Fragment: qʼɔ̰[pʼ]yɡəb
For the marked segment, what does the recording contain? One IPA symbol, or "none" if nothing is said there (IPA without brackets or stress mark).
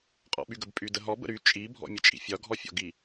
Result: ɓ